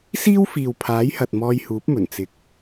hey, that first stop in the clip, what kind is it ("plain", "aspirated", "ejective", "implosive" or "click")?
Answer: aspirated